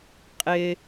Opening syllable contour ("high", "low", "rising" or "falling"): high